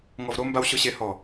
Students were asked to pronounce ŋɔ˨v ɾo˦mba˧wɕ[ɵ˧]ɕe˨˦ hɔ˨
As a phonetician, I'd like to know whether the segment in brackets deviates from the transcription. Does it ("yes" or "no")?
yes